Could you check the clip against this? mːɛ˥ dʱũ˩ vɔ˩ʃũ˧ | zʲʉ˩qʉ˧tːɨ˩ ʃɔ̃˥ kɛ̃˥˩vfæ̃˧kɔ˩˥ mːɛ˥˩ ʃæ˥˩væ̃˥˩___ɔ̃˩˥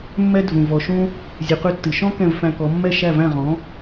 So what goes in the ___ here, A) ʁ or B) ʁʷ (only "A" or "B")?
A